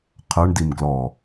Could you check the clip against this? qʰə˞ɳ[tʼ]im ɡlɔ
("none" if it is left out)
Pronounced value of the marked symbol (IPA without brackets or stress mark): d